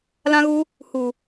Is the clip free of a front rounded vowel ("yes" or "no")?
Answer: yes